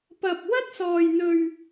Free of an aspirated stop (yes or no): yes